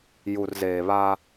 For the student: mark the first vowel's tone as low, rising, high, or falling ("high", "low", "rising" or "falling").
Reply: low